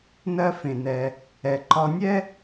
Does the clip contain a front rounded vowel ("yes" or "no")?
no